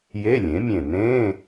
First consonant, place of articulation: palatal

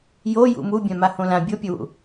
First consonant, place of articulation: palatal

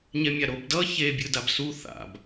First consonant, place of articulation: palatal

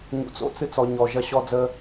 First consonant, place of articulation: palatal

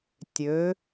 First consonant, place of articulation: alveolar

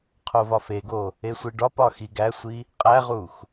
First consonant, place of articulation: uvular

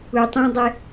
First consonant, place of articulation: alveolar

